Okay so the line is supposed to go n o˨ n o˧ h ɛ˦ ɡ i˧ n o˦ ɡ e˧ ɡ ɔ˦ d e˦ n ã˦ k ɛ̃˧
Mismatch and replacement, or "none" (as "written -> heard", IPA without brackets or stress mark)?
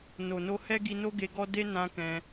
none